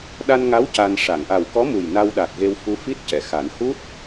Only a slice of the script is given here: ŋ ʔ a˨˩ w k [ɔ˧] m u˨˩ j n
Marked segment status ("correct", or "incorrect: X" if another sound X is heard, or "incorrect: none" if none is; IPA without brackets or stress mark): incorrect: ɔ˧˥